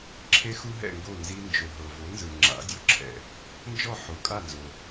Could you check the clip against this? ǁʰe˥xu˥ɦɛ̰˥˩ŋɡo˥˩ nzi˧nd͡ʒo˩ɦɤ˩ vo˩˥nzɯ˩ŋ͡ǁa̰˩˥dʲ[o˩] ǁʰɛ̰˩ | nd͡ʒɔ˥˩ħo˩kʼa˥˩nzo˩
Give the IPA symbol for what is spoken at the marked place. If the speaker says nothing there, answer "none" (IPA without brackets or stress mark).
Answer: ɔ˩